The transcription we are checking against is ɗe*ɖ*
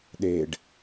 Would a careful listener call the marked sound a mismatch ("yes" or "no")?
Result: no